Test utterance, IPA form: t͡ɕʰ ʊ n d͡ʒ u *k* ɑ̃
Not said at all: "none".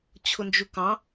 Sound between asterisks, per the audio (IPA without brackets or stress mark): k